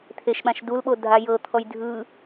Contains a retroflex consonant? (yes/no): no